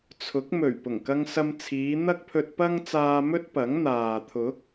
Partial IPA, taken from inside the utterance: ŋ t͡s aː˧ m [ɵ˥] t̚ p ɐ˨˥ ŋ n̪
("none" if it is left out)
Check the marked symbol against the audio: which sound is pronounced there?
ɵ˥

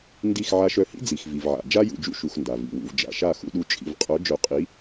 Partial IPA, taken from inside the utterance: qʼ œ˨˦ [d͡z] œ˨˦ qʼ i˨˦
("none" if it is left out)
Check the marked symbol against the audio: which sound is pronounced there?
d͡ʒ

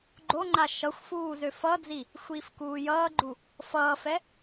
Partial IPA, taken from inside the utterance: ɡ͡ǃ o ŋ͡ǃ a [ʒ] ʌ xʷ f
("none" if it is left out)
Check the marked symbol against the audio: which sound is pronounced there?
ʃ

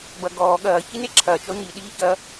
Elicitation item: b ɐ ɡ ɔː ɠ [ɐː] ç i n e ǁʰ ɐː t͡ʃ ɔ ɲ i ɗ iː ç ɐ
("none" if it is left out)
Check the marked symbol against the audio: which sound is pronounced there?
ɐː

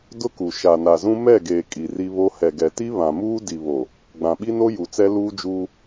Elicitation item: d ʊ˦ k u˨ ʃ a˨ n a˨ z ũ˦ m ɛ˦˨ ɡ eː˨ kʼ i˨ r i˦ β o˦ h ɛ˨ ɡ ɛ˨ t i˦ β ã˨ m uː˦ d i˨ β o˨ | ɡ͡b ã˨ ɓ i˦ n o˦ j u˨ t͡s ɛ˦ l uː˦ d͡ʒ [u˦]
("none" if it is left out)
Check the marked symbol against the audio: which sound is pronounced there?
uː˦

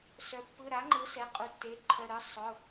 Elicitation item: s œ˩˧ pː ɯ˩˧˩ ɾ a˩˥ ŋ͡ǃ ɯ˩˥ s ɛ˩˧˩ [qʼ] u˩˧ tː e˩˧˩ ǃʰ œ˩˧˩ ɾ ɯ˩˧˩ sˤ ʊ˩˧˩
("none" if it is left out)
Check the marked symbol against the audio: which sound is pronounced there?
qʼ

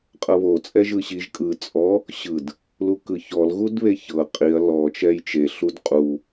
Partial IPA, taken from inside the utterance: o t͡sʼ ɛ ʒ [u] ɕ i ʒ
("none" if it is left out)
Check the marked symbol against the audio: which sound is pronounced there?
ɯ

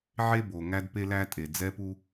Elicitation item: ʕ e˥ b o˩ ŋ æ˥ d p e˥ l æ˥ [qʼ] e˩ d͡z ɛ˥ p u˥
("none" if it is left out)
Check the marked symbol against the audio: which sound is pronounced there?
tʼ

